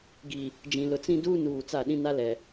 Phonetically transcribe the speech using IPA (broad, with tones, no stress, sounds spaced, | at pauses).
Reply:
ɡ i˨ | d͡ʒ ĩ˨ l ʊ˨ t͡s ĩ˦ d uː˦ n uː˨ t͡s a˦˨ ɗ ĩ˦ n a˦ l ɛ˨